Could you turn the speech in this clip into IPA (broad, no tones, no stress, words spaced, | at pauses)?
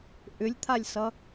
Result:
ʔʏlʲt̪ʰalʲsʌ